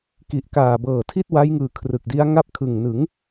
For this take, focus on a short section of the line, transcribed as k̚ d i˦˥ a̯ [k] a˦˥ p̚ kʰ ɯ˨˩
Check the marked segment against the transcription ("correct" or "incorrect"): incorrect